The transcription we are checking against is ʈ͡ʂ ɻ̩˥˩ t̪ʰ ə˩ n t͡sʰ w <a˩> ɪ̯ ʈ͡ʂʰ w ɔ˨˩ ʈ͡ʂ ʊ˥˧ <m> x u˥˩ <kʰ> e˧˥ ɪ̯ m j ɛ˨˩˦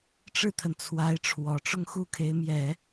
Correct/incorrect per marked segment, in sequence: incorrect: a˧˥, incorrect: ŋ, correct

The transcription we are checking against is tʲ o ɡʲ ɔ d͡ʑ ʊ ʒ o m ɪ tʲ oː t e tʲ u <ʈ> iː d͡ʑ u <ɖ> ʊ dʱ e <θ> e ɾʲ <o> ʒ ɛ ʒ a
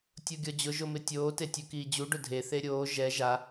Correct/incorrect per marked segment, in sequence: incorrect: k, correct, correct, incorrect: oː

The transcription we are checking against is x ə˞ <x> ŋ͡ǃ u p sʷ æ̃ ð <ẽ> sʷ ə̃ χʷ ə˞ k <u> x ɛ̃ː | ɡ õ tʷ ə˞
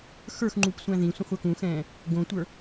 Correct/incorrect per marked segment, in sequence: correct, incorrect: ĩ, incorrect: ũ

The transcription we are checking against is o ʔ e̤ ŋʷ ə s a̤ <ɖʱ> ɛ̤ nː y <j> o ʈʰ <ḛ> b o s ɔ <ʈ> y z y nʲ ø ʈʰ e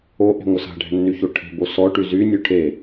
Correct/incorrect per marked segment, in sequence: correct, incorrect: ç, incorrect: e̤, correct

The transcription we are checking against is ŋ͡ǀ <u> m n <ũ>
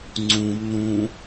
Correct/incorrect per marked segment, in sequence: incorrect: ũ, correct

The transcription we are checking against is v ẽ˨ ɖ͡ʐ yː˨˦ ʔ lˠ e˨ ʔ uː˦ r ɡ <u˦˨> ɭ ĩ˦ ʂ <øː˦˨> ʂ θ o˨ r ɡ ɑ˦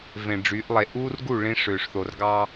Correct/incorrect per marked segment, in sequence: correct, incorrect: øː˨

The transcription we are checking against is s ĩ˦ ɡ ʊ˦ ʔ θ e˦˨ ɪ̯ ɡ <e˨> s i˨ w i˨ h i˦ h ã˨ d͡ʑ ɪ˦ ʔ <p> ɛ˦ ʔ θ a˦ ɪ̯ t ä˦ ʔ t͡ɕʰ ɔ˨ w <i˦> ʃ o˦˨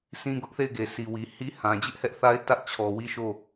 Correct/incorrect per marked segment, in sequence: correct, incorrect: h, correct

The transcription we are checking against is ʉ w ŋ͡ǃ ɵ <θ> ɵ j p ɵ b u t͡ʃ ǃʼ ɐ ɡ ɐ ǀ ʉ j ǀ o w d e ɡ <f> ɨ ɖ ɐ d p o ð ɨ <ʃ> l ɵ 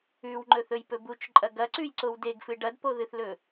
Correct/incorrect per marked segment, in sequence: correct, correct, incorrect: θ

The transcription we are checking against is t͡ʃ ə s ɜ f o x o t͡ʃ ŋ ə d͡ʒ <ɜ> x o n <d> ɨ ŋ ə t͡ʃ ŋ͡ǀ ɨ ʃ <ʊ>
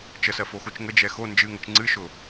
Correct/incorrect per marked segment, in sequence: incorrect: ɛ, incorrect: d͡ʒ, correct

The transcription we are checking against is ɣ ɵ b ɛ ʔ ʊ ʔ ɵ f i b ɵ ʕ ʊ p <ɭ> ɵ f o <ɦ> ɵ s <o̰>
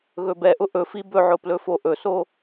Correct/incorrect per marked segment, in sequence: incorrect: l, incorrect: ʔ, incorrect: o

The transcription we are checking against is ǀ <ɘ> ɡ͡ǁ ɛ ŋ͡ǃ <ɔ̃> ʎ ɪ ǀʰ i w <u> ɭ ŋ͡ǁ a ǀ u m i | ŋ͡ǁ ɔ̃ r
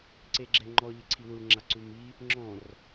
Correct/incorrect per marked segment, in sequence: incorrect: e, incorrect: ɔ, correct

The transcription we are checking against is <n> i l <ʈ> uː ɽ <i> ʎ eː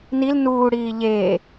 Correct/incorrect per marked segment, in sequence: correct, incorrect: n, incorrect: iː

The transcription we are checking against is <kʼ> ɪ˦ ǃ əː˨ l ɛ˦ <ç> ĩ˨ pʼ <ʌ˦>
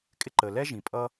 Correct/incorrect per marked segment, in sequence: correct, incorrect: ʒ, correct

